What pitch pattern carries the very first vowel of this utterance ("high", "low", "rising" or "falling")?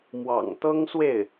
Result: low